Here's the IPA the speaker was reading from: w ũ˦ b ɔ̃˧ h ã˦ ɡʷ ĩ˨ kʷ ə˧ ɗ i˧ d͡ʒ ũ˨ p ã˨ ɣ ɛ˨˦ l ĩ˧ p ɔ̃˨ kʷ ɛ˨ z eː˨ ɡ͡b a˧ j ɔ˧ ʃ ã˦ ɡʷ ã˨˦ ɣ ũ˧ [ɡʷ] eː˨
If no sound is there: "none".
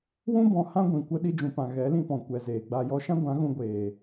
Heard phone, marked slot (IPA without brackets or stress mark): ɡʷ